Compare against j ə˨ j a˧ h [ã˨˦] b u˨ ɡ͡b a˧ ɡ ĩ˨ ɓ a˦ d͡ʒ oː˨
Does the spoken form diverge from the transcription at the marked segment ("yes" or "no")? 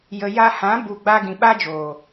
no